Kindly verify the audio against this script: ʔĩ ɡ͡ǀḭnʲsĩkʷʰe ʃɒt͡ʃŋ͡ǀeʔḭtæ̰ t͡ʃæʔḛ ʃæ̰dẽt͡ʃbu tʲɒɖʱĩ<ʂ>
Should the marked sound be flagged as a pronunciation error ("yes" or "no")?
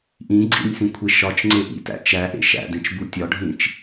yes